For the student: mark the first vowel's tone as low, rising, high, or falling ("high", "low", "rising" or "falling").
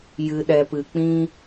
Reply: low